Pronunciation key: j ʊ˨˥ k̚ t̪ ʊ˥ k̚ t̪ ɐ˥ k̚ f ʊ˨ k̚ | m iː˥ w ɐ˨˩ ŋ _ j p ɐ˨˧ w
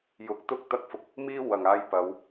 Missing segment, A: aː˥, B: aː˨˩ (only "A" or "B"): A